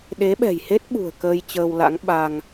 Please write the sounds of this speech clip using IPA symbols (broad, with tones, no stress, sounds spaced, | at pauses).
ɗ e˨˦ ɓ ɛ̤˨˩ j h e˦˥ t̚ ɓ ṳ˨˩ ə̯ k əː˧ j t͡ɕ əː˧ w l a̰˧˥ ŋ ɓ a˧ ŋ